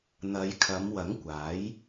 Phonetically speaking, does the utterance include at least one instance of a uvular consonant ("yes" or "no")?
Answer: no